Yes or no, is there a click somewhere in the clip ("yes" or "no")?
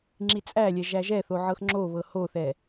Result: yes